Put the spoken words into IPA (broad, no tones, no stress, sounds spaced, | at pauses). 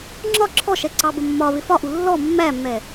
ŋ͡ǁ ɒ ǁʰ ɔ ʃ ɛ ǀ ɑ b ə mː ɒ β ɪ f ɒ ʔ u lː ɔ mː æ mː ɛ